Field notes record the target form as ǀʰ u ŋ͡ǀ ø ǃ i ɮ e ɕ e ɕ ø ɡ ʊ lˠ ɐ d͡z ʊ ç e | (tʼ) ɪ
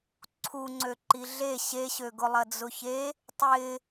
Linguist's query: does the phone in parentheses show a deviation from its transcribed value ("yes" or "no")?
yes